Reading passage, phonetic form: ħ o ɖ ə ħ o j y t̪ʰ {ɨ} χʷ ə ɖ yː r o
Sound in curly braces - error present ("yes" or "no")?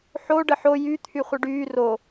yes